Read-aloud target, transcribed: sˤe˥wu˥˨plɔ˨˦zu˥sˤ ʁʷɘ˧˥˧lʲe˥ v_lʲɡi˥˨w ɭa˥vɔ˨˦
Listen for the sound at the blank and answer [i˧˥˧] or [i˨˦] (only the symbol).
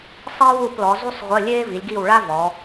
i˨˦